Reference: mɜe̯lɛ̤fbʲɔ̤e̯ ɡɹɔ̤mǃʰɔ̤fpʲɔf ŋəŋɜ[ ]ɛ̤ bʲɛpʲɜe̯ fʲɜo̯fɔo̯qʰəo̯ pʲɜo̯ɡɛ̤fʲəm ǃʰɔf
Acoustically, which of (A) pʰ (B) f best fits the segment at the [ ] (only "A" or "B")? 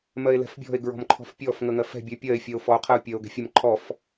B